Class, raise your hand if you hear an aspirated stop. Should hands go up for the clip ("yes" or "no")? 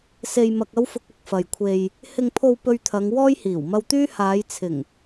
yes